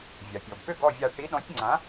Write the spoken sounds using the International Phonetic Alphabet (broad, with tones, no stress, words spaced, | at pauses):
vʲa˩pʲɔ˩b pʏ˥˩ɡɔ˥˩vʲa˧˩ ʈi˨˥ɗɔ̃˨˥tʲŋ͡ǀã˨˥